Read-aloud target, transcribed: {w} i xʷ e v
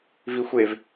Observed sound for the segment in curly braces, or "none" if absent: v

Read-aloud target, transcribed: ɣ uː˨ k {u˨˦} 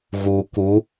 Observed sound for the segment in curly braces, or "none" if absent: u˨˦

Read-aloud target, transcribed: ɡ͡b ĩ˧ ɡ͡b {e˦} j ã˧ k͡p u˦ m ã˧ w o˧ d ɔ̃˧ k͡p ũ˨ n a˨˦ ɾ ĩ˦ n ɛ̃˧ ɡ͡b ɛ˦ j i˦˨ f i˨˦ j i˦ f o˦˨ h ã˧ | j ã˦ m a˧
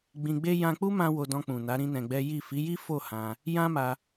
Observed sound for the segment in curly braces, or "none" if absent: e˦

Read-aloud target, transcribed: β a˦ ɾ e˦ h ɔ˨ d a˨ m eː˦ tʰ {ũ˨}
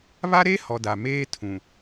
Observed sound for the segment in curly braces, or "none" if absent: ũ˨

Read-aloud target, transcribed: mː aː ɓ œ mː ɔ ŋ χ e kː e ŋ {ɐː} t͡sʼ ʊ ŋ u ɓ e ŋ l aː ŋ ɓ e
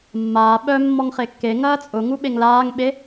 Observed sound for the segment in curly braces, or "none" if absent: ɐː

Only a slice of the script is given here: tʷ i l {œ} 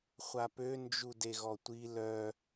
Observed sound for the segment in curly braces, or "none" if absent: œ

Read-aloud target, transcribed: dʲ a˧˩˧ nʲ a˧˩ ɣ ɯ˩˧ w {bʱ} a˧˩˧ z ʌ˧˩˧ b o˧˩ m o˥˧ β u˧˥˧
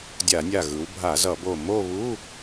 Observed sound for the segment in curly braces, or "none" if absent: bʱ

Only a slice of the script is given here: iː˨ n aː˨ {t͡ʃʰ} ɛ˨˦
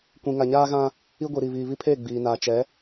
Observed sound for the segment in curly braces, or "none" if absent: t͡ʃ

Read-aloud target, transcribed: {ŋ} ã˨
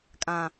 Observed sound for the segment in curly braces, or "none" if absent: kʼ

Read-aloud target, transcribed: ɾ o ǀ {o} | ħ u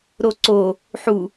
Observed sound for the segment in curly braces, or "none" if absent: o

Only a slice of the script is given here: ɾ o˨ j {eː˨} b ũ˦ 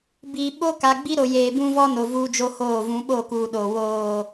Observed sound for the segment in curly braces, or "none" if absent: eː˨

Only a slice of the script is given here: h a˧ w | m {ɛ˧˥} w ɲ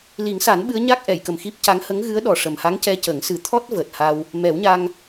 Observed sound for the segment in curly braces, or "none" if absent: ɛ˨˩˦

